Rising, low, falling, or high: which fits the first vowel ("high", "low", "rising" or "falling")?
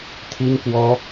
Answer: high